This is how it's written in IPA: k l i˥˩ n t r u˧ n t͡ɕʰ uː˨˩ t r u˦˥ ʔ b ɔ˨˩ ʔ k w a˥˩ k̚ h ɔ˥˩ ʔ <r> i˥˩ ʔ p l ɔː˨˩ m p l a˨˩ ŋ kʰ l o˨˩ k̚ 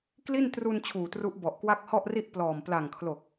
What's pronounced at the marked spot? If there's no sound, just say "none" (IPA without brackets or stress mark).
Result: r